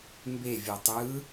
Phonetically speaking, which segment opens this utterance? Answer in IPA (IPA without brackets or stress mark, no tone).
m